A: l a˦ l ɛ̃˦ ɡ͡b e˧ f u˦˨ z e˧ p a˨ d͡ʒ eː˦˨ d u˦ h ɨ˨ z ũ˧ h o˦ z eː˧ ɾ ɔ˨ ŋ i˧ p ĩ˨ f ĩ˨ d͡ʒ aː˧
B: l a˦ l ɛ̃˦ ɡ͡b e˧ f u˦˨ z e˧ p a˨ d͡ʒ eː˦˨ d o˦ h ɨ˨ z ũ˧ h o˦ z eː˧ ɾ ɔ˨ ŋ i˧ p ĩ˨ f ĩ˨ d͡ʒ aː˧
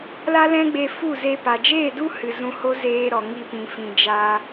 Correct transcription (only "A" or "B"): A